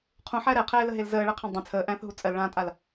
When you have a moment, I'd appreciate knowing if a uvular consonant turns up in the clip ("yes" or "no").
yes